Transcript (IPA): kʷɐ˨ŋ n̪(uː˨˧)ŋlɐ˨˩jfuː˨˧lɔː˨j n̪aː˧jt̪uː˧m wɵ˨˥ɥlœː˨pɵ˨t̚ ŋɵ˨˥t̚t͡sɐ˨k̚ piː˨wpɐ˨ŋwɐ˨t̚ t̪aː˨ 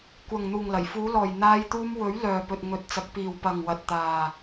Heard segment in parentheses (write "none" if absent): uː˨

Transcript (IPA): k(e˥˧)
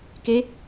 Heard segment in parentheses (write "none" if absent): e˧˥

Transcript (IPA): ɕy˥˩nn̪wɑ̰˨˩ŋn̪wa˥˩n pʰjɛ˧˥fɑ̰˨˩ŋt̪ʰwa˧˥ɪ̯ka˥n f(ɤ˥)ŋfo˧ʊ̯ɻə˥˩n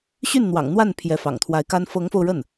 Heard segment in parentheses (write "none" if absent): ɤ˧˥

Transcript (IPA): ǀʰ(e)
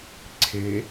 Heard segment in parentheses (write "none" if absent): e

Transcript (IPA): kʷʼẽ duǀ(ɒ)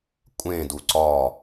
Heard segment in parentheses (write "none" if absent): ɒ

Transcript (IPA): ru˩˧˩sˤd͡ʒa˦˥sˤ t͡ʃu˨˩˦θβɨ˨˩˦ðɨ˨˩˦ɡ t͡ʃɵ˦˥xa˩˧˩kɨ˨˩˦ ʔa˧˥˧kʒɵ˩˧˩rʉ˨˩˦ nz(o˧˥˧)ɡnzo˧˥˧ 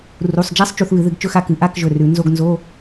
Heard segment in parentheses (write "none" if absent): o˧˥˧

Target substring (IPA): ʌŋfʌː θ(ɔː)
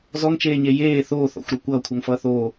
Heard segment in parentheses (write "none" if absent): oː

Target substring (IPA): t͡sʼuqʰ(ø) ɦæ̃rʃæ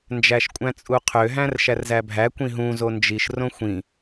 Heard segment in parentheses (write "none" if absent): ø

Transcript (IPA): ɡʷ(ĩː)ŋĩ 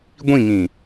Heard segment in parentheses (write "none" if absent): ĩ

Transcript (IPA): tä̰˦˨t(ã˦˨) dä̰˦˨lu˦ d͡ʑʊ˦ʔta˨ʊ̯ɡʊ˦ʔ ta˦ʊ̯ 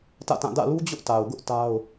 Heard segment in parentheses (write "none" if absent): ã˦˨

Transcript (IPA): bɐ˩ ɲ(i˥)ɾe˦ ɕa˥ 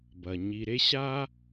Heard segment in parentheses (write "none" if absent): i˨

